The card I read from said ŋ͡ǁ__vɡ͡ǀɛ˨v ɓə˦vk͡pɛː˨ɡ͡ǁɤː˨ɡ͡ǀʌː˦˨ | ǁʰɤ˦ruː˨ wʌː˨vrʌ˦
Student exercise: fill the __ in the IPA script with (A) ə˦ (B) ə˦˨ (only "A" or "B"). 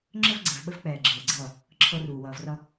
A